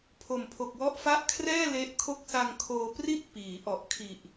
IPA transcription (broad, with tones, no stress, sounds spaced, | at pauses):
pʰ o˨˩ m pʰ o˨˩ k̚ w ɔ˦˥ ʔ f a˦˥ ʔ kʰ r ɛː˥˩ l e˦˥ ʔ kʰ o˥˩ k̚ s a˧ ŋ kʰ oː˧ p r i˥˩ t̚ p iː˩˦ ʔ ɔ˨˩ ʔ kʰ i˨˩ ʔ